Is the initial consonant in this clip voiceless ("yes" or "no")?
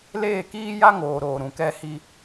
no